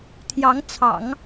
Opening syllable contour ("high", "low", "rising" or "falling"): rising